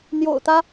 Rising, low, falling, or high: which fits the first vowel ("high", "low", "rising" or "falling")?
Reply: low